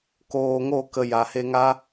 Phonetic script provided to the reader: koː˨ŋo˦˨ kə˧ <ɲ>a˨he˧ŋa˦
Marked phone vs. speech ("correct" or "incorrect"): incorrect